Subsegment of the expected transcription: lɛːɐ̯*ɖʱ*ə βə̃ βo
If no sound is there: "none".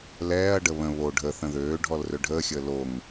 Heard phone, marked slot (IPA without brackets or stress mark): ɖ